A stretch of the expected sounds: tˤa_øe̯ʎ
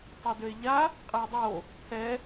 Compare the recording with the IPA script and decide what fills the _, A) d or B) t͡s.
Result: A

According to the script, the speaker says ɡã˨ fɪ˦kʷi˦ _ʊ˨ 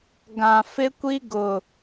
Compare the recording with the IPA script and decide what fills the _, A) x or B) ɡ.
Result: B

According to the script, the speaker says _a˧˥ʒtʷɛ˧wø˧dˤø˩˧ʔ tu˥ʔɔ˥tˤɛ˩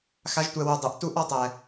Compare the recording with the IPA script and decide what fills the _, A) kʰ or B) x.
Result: B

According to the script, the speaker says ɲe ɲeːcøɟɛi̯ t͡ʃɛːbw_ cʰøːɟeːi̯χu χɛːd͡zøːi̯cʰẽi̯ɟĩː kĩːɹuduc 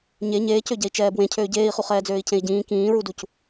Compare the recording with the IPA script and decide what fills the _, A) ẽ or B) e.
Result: A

